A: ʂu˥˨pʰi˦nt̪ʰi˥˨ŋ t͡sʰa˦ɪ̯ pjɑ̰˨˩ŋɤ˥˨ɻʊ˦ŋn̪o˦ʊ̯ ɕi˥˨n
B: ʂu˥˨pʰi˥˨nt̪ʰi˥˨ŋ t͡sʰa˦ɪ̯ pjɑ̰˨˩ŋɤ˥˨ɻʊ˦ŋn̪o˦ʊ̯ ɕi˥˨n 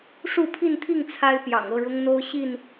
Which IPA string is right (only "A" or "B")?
B